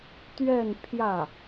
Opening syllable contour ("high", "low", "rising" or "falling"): falling